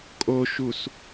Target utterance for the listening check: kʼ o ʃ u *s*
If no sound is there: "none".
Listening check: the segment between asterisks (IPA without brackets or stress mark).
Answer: s